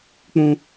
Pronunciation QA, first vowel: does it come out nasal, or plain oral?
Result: nasal